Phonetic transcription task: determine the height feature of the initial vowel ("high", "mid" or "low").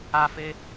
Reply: low